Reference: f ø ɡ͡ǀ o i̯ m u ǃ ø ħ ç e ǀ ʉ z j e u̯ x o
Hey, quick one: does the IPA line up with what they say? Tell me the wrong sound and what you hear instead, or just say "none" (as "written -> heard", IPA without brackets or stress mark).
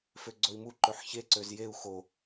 ʉ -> ø